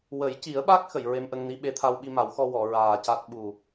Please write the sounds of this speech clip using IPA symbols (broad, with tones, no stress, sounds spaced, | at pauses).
w ə˨˩˦ j c i˨˩˦ ə̯ ɓ a˦˥ k̚ x ə˨˩˨ j ɹ e˧ m ʔ ə˧ ŋ n i˧˥ ɓ e˧˥ t̪ʰ a˧ w ɓ i˧ m a˨˩˦ w x ɔ˧ w ɔ˨˩˨ ɹ aː˨˩ c a˦˥ t̚ ɓ u˨˩